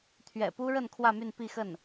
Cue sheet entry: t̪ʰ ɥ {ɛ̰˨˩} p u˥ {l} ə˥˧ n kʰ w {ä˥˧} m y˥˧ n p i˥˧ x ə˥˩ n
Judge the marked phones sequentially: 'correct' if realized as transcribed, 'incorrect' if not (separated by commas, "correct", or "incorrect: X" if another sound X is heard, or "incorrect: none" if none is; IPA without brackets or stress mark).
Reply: correct, incorrect: ɻ, correct